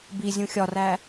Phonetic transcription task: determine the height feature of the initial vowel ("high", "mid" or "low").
high